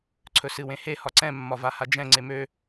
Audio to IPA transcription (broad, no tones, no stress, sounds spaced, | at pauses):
ǀʰ ɵ s ɨ w ẽ h e h ɒ ǀ ɛ̃ mː ɒ v a h a d͡ʒ ɛ̃ ŋ͡ǀ e m ø